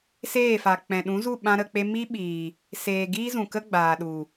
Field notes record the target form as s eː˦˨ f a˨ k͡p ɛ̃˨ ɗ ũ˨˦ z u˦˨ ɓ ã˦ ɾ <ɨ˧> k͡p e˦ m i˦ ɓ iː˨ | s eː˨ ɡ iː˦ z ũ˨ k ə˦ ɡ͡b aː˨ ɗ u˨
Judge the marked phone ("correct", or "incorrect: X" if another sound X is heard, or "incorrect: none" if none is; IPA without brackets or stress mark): incorrect: ə˧